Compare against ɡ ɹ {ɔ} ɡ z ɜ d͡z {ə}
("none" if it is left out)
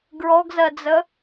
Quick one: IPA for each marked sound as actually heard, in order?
ɔ, ə

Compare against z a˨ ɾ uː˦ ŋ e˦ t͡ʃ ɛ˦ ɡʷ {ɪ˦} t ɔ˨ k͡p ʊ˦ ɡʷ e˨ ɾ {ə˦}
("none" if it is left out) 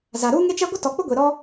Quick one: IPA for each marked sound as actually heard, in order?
ɪ˦, ɔ˦

